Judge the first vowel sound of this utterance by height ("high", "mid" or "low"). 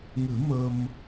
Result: high